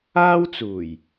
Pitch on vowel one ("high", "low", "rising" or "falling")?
high